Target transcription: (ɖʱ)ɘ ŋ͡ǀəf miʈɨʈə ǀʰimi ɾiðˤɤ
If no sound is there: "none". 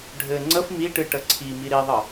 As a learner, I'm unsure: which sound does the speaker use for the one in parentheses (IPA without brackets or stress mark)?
ɖʱ